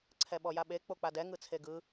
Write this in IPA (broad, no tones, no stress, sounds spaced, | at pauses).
ǀʰ ɛ ɓ ɔ j a ɓ e k͡p o k͡p a d ɛ ŋ ɯ t͡sʰ e ɡ ɯ